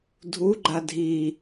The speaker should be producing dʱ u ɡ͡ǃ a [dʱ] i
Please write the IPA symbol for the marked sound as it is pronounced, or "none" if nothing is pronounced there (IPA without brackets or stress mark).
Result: dʱ